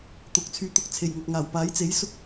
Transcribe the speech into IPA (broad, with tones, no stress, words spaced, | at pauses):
t̪ʊ˨˥k̚t͡sʰyː˧t̪ʊ˧k̚ t͡sʰe˨˩jŋɐ˨k̚ŋaː˨˩w paː˨˥jt͡se˨˥j sʊ˥k̚